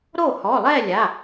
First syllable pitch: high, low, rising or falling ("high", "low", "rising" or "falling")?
falling